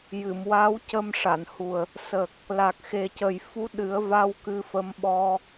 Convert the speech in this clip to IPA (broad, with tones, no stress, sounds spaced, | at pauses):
j ɨ˨˩˨ m w a˧˥ w c ə˧ m ʂ a˨˩˨ n h u˨˩ ə̯ | s ə˨˩ k̚ | l a˨˩ k̚ x e˨˩ c ə˨˩ j f u˧˥ ɗ ɨ˨˩˦ ə̯ v a˧ w k ɨ˧ f ə˧˥ m ɓ ɔ˧